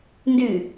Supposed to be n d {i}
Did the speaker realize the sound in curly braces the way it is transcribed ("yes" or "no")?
no